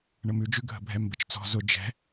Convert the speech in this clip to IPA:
ɳ ə m ʉ d͡ʒ ʉ ɡʱ ə̤ bʱ ɛ m b ə t͡ʃ t͡s ɔ̤ z ʊ d͡ʒ ɛ̤

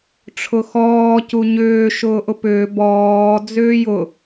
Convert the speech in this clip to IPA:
ʈ͡ʂʰ ʊ x ɔː c u ɲ ʏː ʃ ʊː ʔ ʊ p ʏː b ɔː d͡z ʏː j ʊ

